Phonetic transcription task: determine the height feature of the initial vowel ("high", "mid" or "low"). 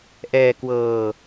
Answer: mid